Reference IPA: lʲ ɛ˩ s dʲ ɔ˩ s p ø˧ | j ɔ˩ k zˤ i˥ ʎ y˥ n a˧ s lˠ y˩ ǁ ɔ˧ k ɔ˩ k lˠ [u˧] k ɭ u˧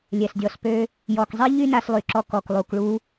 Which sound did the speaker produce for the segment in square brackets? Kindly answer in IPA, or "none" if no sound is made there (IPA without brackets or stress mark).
u˩